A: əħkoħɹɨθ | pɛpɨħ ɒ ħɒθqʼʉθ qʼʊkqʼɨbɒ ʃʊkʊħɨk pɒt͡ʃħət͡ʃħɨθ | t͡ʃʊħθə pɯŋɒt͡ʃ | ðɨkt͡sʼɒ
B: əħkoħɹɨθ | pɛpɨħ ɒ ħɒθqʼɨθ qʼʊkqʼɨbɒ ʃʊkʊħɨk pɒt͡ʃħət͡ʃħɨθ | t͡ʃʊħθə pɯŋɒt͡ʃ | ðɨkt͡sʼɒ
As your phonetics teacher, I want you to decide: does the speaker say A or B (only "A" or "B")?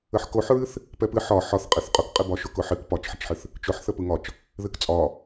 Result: B